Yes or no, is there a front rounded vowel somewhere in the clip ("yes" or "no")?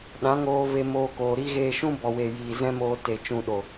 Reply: no